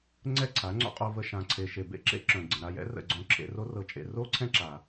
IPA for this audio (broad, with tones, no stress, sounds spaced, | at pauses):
ŋ͡ǀ ɛ˦˨ ǀʰ a˨˦ ŋ͡ǀ o̰˦ qʼ o˧ v ə˧ ʃ ã˨ ǀʰ e˨ ʃ e˨ b ḛ˧ ǁ ḛ˦ ǁ œ̃˨ ɡ͡ǀ ə̃˨ ɾ a˧ j ɛ̰˦ r ə̰˦˨ ɡ͡ǀ õ˧ ǁʰ ḛ˧ r o˦ r ɤ˧ t͡ʃʼ ḛ˧ r o˦ ǀʰ ɛ̃˦ ǁ a˨